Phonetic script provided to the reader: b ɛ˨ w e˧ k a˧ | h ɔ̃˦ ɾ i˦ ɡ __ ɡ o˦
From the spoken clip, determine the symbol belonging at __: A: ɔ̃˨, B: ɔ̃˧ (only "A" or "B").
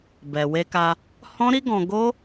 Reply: B